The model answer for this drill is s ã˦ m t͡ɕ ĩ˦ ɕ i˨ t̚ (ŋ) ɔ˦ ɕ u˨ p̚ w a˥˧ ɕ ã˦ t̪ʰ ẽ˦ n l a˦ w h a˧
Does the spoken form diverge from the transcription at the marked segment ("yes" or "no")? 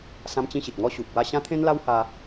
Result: no